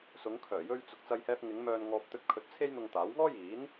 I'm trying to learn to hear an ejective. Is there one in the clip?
no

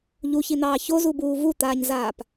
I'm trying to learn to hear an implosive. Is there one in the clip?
no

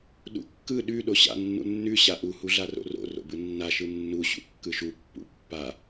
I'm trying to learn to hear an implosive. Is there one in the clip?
yes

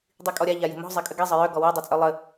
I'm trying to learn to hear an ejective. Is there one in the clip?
yes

